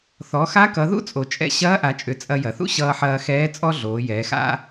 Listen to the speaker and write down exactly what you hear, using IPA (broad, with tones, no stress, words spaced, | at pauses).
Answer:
θɔ˩˧xa˧˥kʌ˩˧ ðṵ˥t͡sʼo˩t͡ʃʼɛ̰˧ ɕɐː˧˥ʔa˩˧t͡ʃʼʏ˩˧ t͡sʼɐ˧jɐ˩θṵ˥ ɕʌː˧ħɐː˧xɛː˧˥ t͡sʼɔ˥ɮoː˩˧jɛː˩˧xa̰˥